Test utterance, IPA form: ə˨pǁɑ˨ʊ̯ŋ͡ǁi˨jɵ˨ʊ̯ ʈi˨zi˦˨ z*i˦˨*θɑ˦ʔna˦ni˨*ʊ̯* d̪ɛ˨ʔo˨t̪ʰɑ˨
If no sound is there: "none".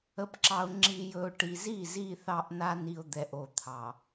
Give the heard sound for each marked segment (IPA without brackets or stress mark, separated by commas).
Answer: i˦˨, ʊ̯